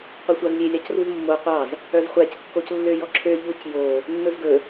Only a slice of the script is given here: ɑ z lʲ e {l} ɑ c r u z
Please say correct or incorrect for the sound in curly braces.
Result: incorrect